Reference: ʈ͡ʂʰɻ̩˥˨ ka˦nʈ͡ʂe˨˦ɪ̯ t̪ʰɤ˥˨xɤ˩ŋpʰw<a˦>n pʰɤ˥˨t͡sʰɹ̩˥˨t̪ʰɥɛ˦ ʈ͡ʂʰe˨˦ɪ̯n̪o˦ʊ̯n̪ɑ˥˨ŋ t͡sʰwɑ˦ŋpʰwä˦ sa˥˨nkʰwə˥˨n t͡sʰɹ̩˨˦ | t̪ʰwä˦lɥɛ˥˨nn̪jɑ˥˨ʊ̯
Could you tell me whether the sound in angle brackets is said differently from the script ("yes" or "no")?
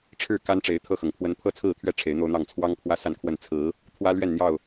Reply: yes